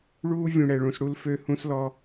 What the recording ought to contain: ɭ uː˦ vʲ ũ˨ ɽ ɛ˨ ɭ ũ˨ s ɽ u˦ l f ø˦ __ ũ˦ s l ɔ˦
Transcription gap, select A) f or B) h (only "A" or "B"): B